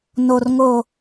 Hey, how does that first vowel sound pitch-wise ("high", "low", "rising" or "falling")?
low